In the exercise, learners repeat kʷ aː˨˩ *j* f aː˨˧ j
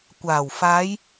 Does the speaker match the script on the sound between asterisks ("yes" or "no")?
no